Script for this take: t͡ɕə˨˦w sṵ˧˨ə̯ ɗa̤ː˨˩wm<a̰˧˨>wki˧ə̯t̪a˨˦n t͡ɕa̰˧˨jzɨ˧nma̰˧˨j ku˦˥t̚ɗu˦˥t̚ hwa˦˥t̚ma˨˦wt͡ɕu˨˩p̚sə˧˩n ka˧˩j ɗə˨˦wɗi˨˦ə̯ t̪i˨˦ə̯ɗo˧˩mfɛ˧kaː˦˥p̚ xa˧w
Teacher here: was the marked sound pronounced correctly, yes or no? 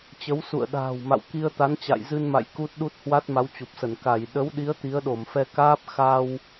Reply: yes